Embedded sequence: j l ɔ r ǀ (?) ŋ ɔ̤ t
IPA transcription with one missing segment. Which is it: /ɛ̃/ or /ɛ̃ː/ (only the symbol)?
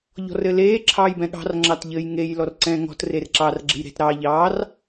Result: ɛ̃ː